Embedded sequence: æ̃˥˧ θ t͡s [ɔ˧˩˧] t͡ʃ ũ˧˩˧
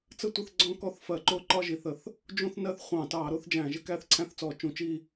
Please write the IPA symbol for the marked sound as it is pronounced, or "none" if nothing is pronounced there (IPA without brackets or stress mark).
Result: ɔ˧˩˧